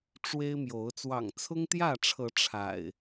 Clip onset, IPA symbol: ʈ͡ʂ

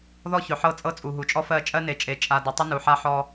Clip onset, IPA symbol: ð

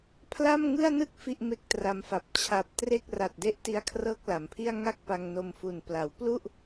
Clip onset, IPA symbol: pʰ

